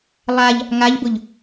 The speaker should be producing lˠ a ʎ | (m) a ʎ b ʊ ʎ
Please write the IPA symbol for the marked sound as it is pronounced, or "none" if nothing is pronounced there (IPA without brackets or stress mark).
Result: ŋ